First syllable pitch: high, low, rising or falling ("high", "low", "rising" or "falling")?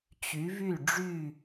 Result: rising